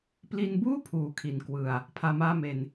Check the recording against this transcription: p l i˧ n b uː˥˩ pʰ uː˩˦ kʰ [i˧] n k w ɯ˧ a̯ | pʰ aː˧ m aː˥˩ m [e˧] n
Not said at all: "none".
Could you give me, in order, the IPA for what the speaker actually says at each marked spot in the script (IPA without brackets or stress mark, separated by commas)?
i˨˩, e˧